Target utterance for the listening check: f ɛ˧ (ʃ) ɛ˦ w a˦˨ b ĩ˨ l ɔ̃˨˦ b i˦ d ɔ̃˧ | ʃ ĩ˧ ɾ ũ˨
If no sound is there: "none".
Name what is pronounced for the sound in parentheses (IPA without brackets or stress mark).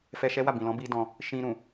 ʃ